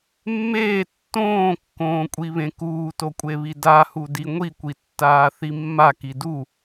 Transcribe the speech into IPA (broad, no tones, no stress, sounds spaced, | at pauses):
mː eː tː õː kː õː kʷʼ i β ẽ k uː t o kʷʼ e β i d a h u d i ŋʷ i kʷ i tː aː θ i mː a k i d u